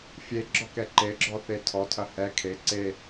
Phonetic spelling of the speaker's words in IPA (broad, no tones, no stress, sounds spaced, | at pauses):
fʲ e ɡ͡ǁ ɔ k ɛ ǃ e ɡ͡ǁ ɔ θ e tʰ ɔ tʰ ɐ h ɛ kʰ e ǀ e